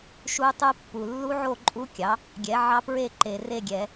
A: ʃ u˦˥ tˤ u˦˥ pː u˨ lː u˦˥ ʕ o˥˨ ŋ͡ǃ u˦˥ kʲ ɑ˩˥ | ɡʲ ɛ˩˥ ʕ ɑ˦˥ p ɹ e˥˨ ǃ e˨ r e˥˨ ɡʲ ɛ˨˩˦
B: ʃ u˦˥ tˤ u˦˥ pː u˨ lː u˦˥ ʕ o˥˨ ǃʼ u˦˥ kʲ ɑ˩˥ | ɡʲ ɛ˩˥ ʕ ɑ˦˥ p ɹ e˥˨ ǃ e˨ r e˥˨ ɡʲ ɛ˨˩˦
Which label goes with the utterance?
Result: B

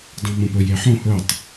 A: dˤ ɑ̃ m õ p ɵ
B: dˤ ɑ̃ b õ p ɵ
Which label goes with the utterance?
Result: A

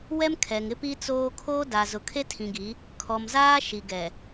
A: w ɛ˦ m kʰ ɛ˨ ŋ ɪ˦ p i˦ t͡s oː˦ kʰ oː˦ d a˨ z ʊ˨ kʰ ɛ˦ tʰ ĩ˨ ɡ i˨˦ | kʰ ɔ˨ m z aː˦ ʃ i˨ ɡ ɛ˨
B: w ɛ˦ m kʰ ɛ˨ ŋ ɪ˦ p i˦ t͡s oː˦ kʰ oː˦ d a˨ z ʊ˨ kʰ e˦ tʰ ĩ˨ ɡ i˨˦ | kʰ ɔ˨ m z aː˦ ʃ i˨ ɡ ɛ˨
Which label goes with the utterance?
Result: B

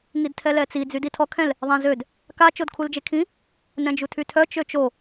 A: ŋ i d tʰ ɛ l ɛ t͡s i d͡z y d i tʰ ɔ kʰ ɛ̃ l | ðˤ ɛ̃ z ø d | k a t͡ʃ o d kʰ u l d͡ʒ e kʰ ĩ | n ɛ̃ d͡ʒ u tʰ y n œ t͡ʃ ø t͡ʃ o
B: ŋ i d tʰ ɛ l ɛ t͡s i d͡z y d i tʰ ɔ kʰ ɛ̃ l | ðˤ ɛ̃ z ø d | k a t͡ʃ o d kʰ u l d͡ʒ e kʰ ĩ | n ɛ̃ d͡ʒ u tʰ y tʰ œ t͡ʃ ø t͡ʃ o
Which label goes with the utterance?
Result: B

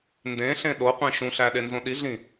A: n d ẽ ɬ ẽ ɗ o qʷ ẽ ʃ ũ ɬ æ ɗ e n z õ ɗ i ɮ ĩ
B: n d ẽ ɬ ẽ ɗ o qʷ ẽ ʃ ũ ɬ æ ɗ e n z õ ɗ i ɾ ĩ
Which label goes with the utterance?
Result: A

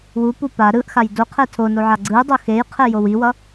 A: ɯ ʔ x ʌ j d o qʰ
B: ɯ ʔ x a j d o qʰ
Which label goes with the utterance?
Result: B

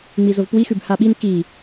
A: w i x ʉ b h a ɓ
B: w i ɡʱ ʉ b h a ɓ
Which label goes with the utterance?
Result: A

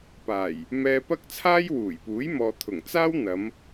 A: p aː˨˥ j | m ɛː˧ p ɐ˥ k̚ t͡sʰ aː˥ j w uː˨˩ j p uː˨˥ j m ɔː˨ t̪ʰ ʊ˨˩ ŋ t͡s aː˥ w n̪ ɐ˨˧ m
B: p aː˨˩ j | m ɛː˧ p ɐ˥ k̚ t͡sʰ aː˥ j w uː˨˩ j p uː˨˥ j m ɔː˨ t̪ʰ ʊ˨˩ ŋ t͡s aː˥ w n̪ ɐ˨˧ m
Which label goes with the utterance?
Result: B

